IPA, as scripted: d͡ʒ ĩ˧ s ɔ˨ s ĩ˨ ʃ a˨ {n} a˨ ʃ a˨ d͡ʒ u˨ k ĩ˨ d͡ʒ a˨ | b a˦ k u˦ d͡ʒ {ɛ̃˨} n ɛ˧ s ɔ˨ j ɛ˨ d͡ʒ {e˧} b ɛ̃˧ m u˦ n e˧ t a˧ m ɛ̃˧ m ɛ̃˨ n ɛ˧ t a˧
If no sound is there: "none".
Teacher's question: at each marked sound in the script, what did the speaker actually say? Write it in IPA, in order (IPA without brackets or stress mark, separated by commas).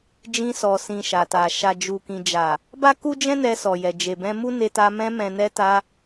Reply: t, ɛ̃˦, e˨